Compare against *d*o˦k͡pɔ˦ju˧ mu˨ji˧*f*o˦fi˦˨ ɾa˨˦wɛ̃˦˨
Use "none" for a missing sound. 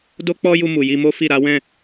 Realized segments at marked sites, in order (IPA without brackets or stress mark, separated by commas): d, m